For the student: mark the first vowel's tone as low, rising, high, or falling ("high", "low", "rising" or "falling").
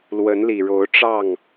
rising